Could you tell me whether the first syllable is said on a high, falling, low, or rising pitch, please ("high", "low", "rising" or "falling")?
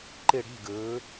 falling